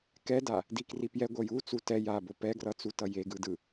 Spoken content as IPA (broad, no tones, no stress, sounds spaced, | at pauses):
k ɛ d a | d i k r i p j ɛ ɡʷ ʌ j u t͡s u t ɛ j a b o p ɛ ɡ r ʌ t͡s u t ʌ j e ɡ ɯ d ɯ